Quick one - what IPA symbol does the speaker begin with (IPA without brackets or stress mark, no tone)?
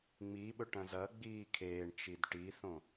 ŋ͡m